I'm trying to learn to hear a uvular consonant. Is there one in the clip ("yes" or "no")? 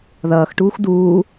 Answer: no